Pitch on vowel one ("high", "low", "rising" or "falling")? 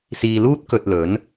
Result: low